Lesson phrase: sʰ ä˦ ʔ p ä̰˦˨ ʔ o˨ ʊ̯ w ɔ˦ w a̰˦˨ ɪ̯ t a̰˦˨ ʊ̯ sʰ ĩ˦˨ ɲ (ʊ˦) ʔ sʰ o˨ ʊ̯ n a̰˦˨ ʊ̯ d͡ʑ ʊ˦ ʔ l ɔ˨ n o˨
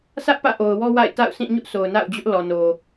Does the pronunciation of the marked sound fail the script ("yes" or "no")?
no